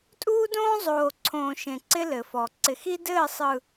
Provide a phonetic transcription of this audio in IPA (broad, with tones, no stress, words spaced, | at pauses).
tʼuː˦dõː˦zˤoː˨ǀʰõː˨ ʃẽ˨ǀɪ˦ lɘ˨fɔ˨ ǀɪ˨xi˦dɘː˦˨sˤɯ˨